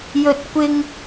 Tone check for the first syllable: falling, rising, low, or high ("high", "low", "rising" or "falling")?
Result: low